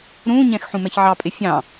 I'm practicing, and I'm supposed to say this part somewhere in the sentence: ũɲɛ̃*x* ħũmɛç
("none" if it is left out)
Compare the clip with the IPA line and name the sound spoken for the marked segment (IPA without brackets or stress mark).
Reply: x